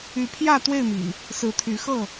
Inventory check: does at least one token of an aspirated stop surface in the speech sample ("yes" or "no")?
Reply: yes